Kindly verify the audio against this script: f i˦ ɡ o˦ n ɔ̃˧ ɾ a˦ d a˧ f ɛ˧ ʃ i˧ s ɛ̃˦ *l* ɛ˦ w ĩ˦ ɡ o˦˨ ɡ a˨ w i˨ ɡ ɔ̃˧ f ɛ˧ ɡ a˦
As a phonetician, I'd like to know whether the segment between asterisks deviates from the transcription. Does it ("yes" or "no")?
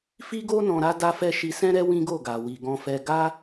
yes